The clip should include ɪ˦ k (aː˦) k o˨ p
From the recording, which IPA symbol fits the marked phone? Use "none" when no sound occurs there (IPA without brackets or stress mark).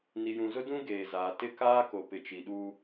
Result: aː˦